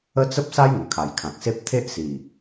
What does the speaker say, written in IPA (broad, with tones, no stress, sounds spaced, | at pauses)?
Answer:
ə˦ t͡s ə˦ p̚ s a˦ j ŋ ə˨˩ kʰ a˨˩ j kʰ ã˨ k̚ s e˦ p̚ t̪ʰ e˦ ʔ s i˨˩